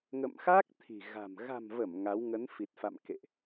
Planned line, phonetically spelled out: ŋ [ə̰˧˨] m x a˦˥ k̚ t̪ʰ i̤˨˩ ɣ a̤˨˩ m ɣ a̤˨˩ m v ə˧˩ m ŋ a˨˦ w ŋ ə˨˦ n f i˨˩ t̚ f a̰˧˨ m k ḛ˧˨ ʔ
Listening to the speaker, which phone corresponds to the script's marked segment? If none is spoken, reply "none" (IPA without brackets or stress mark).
ə̰˧˨